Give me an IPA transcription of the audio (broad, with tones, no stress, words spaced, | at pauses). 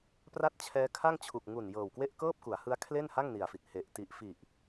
pra˥˩t̚t͡ɕʰɛː˦˥kʰa˥˩ŋt͡ɕʰu˨˩k̚ ŋu˨˩n jɤː˨˩wkwe˥˩ʔkɤː˥˩p̚ku˩˦a̯ hɯ˦˥a̯kʰle˥˩nha˥˩ŋ ni˨˩a̯fi˨˩t̚ he˨˩ʔ ti˨˩ʔfi˨˩ʔ